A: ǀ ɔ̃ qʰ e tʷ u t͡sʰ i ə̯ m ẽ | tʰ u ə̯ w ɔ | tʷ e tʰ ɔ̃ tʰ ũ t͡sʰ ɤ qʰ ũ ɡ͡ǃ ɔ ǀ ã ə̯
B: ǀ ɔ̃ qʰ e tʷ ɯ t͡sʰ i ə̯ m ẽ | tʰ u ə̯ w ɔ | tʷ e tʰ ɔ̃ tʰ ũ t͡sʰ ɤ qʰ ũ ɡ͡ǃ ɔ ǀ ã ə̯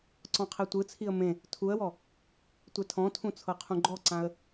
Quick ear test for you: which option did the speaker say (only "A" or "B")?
B